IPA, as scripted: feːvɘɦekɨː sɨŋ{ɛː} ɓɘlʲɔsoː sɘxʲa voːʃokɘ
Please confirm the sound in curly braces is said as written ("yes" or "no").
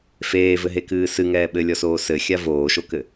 yes